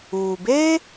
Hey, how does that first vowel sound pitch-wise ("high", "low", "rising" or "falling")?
low